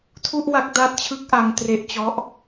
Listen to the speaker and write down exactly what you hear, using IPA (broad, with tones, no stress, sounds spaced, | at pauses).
tʰ u˥˩ ʔ w a˦˥ k̚ d a˦˥ t̚ t͡ɕʰ ɯ˦˥ k̚ ʔ a˧ ŋ t r e˦˥ ʔ t͡ɕ ɔ˦˥ ʔ